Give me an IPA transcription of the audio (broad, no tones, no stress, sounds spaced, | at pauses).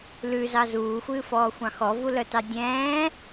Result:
l ʉ z ɑ z uː xʷ ɨː f ɔː xʷ ɑ̃ x ɔ v u l œ t ɑ dʲ ɛ̃ː